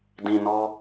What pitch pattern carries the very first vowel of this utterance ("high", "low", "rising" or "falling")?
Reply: low